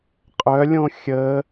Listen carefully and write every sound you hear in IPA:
qʼœlʲõ xʲə

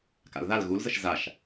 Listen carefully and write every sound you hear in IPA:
ka̰lðal ɣulzəʃ zaʃ

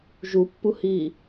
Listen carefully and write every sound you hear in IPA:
ʒupːuhi

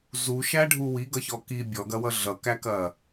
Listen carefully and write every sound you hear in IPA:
zuʃæɖʱu wiɡʌçɔ ki bʲɔɡɐwʌ ɮʌkækɐ

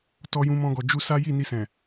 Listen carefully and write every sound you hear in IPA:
tɔ˧jũ˧mɔ̃˧ɡɔ˨ d͡ʒu˧ sa˦ ji˦˨ni˧sɛ̃˨

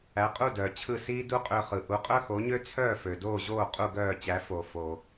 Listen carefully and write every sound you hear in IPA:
æ˩˥qʼu˥˩dœː˩ t͡ɕʰɯ˥˩ siː˥ du˥qʼø˧χɯ˩ ʔu˩˥qʼœ˥xo˩˥ɲø˥ t͡sʰœː˥˩fø˩doː˥˩ʑoː˥˩ qʼu˥˩ɡœː˥˩t͡ɕæ˩˥ fo˩ fo˩

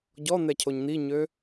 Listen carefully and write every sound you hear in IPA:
ɟɔn̪ɛcʰoɲ n̪iɲø

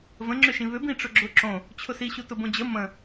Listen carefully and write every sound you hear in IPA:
və̃ŋ͡ǁʏʃĩ βʏbĩ ʈ͡ʂʊɡ͡ǁʊ ǁõ | t͡ɕʰʊsiɕu tʊbõd͡ʑə mə̃

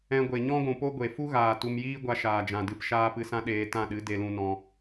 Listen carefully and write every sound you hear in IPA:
ɛ̃˧ɡʷe˨ ɲɔ̃˦ɡʷũ˨po˦ ɡʷe˨fu˦ɣaː˨ tu˧mjiː˦ɡʷa˧ ʃaː˨d͡ʒã˨dɨ˧p ʃaː˦pɨ˧sã˦ ɗeː˧ tã˦˨ɗɨ˨˦ de˧lũ˧nɔ̃˧

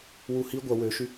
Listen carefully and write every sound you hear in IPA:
wu hi ɡʷɐ wøʃy

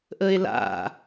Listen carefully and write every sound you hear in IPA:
ʔəe̯la̰

